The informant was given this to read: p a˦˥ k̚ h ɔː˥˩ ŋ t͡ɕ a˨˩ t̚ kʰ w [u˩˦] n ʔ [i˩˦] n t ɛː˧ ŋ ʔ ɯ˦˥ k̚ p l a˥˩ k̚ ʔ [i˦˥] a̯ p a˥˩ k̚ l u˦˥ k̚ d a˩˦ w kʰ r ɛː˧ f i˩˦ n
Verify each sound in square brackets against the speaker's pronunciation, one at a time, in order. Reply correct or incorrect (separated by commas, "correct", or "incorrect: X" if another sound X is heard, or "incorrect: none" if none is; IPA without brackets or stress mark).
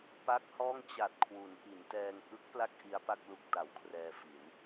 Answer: correct, correct, correct